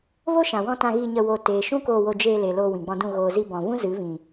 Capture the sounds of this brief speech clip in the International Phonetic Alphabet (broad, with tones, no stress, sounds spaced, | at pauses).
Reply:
v o˦ ʃ ã˨ w ɔ̃˧ t ã˧ ɣ iː˧ ɲ ə˧ w o˧ t eː˨ ʃ ũ˦ k oː˧ w o˧ d͡ʒ eː˧ l e˨ l oː˧ w ĩ˨ ɡ͡b ɔ̃˧ d ũ˦˨ ɣ oː˨ z i˧ b ɔ̃˨ v ũ˦ z ɨ˨˦ v ĩ˨